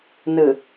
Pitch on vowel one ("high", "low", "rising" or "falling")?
low